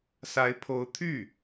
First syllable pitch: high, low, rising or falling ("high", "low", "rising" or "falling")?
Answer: rising